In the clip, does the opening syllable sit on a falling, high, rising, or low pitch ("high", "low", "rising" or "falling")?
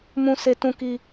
high